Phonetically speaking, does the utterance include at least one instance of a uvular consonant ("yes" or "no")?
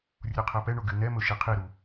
yes